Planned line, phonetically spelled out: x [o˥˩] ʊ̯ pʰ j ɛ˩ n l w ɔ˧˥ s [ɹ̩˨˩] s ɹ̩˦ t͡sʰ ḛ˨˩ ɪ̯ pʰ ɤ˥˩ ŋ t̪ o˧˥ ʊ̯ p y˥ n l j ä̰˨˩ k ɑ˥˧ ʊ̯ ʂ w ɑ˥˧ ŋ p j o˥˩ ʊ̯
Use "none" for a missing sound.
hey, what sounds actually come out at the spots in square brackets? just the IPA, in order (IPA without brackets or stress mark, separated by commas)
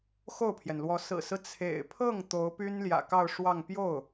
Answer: o˥˩, ɹ̩˨˩